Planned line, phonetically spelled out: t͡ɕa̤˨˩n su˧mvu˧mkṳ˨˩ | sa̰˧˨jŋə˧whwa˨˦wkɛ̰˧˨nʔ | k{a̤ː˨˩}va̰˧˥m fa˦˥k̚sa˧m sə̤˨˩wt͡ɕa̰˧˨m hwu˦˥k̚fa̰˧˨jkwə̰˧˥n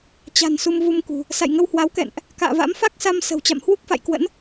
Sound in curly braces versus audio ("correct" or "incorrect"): incorrect